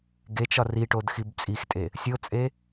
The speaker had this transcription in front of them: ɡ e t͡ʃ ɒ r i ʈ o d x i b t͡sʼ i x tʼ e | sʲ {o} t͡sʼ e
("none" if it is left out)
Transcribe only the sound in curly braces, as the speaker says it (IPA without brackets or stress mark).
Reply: o